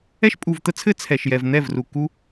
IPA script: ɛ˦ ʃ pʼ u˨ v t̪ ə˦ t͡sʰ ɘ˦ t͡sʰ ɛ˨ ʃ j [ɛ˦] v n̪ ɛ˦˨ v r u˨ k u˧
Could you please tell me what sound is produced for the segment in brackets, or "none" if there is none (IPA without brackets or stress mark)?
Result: ɛ˨